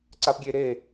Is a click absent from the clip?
no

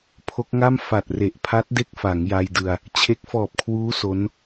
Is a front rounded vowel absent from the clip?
yes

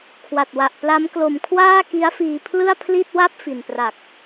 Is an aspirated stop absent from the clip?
no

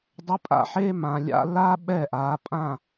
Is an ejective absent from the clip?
no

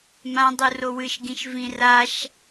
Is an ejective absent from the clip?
yes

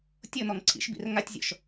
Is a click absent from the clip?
no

